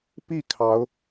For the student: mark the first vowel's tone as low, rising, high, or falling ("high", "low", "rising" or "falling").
falling